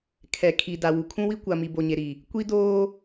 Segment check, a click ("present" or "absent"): absent